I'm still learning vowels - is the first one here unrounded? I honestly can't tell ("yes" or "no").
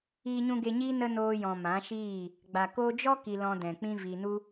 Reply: yes